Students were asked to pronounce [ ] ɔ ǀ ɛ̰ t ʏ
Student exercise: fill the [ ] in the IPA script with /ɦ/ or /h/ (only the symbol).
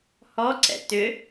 h